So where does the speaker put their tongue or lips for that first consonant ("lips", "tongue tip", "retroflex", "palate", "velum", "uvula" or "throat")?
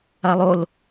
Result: tongue tip